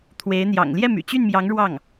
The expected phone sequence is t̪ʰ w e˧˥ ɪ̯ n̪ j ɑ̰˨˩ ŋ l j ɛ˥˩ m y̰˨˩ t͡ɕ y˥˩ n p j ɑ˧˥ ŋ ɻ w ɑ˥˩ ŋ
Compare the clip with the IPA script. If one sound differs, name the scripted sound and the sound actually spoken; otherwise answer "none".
p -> m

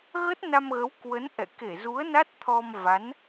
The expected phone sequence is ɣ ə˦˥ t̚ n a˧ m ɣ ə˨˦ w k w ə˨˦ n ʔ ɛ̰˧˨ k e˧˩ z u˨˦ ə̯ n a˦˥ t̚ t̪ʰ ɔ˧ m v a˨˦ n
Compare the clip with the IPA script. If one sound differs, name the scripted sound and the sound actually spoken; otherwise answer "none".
none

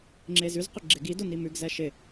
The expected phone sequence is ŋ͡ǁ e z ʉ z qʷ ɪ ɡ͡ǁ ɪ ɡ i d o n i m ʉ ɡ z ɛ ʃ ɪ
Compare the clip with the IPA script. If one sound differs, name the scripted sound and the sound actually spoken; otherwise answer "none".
none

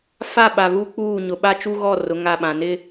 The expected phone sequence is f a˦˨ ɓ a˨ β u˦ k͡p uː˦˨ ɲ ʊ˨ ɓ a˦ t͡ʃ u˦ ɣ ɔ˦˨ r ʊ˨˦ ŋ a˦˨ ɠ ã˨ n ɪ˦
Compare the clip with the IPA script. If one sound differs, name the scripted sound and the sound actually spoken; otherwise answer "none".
ɠ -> ɓ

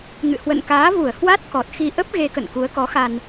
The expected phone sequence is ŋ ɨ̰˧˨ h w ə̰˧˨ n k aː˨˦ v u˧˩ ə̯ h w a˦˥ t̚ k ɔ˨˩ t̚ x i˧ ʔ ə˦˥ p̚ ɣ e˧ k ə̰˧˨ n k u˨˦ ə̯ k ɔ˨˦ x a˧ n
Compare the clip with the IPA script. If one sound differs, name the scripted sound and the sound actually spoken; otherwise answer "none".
none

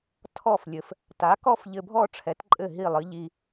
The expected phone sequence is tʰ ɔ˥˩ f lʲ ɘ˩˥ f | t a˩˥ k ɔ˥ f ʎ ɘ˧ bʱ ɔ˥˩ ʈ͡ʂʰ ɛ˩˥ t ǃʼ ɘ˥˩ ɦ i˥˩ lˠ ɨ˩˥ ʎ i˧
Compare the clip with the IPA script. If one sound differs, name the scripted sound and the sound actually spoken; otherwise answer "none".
none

